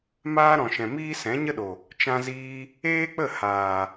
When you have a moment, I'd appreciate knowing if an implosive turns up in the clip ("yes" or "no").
yes